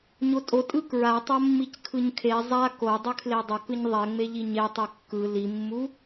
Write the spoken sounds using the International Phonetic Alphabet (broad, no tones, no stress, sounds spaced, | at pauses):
ɲ o tʼ o tʼ ɯ k ɹ a tˤ o mː i c kʰ ɯ ɲ kʰ e zˤ a k o dˤ ɯ kʰ l e dˤ ʌ k ɯ ɲ ðˤ ɛ ŋ͡m e ʎ i ɲ e tˤ ɯ kː ɯ l i mː u